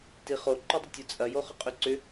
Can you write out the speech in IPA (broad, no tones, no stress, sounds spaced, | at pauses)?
t i χ o ǃ y dˤ ʏ tʲ o t͡sʼ ɐ j o χ ʊ qʼ y ǀ ʏ